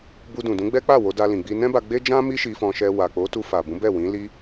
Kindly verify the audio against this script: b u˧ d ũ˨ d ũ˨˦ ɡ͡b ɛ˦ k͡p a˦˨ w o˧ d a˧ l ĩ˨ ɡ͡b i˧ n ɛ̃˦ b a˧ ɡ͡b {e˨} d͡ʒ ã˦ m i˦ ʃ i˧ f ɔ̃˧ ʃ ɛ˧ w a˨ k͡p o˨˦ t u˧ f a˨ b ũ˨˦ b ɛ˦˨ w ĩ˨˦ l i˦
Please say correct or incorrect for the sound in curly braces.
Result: incorrect